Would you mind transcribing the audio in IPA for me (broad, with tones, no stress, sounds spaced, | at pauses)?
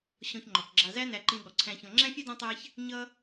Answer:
ɕ ɔ̃˧ ç ŋ͡ǃ ɔ˩ k ɡ͡ǁ ɑ˧ z æ˥ n æ˧ ǃ ĩ˧ ɠ ɔ˩ ǀʰ æ̃˧ ç ɔ̃˧ ŋ͡ǁ æ̃˥ fʲ ɛ˥ d ɔ̃˥ tˤ æ˥ ç | ɲ ʌ˥